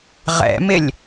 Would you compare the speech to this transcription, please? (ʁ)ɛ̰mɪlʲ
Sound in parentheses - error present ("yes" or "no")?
no